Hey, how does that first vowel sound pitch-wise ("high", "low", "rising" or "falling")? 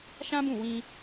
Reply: high